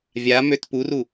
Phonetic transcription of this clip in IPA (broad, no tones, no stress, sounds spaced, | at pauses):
vʲ a m ø t p u r u